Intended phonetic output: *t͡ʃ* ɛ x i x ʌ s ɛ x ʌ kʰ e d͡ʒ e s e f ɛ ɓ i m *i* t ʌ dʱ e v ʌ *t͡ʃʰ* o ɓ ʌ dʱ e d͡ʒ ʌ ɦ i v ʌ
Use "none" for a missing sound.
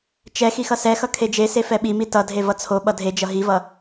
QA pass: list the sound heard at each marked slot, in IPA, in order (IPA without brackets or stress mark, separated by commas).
t͡ʃ, i, t͡sʰ